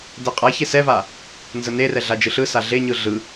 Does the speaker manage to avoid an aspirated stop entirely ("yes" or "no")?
yes